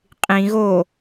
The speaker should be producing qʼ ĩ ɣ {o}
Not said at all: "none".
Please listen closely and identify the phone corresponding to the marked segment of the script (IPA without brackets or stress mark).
o